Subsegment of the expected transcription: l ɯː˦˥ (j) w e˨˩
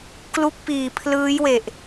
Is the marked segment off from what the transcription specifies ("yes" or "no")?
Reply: no